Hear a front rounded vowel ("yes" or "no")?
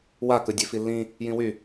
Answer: yes